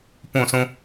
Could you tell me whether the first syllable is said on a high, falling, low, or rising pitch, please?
falling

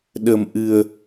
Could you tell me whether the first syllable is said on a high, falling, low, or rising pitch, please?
low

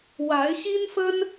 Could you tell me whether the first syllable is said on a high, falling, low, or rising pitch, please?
rising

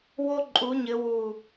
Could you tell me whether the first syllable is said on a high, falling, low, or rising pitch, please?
high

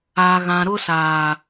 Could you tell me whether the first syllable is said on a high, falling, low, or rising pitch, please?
low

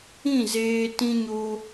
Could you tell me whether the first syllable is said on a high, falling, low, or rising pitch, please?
falling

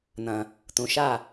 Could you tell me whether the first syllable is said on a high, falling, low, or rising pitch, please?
low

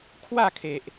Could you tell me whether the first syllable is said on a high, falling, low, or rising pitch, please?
falling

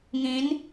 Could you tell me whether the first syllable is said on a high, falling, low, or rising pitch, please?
rising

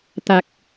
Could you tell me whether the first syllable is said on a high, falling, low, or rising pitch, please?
low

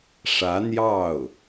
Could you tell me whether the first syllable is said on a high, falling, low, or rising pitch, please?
rising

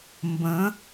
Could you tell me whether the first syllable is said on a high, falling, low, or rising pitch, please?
rising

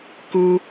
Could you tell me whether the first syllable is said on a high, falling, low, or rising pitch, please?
high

